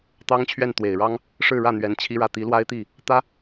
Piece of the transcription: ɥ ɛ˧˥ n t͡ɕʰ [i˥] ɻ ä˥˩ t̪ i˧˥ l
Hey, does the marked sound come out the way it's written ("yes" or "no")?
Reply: yes